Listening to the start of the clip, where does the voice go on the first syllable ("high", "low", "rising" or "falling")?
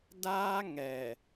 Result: high